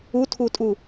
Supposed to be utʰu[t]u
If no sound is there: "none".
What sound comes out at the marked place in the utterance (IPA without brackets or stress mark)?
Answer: tʼ